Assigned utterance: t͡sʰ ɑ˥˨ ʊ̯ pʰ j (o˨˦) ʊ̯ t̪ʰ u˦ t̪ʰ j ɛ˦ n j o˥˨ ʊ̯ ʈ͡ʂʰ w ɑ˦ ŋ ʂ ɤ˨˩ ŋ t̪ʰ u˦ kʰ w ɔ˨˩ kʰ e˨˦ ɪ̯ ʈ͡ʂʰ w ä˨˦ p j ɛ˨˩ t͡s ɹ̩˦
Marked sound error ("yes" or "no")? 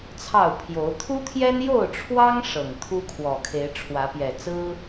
no